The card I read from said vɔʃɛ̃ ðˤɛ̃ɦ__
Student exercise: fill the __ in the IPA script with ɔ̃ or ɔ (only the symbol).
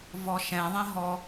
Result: ɔ